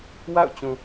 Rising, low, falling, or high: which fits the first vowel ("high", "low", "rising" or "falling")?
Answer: falling